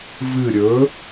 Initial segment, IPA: v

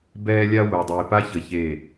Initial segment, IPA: b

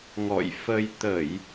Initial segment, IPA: ŋ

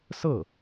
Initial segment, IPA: s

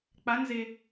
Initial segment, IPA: k͡p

